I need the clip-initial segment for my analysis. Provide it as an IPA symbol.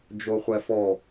d͡ʒ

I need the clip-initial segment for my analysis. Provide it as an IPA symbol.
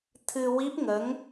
t̪ʰ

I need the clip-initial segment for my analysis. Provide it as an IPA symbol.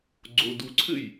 ɡ͡ǀ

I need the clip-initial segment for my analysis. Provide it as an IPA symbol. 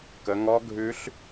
k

